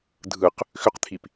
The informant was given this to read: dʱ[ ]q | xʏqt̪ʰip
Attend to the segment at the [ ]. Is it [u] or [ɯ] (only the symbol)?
ɯ